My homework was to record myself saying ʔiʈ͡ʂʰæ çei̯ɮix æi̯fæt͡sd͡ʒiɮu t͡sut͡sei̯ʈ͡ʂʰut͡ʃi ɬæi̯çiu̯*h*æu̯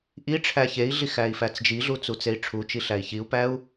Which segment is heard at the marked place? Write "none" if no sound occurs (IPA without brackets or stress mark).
p